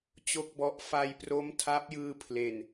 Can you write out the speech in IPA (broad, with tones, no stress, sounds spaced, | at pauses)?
t͡ɕ o˥˩ k̚ b ɔ˦˥ ʔ f a˧ j p r o˦˥ m tʰ a˦˥ p̚ j ɯː˧ pʰ l e˨˩ n